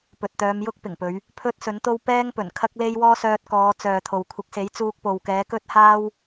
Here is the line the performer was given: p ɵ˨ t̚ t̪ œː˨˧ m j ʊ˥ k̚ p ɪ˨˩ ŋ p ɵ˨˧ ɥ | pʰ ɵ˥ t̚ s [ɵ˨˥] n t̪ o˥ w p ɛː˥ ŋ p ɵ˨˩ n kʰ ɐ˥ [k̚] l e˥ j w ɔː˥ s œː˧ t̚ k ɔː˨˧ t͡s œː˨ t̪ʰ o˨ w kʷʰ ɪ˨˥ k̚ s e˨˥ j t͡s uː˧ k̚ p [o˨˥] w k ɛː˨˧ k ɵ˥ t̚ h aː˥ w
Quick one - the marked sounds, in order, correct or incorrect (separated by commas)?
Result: correct, correct, incorrect